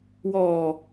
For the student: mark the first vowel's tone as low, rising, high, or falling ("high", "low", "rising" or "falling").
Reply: low